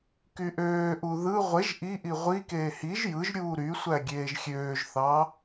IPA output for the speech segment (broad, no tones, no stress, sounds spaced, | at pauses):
k y ʔ øː ʔ u ð ɯ ʁʷ e ʒ ʔ i ʔ i ʁʷ i k eː h i ʒ j ɯ ʒ ɾʲ uː ɾ y sʷ æ ɡʲ eː ʒ xʲ øː ʒ θ ɑ